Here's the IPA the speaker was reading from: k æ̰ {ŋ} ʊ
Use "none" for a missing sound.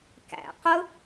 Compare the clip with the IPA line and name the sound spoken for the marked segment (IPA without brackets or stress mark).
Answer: q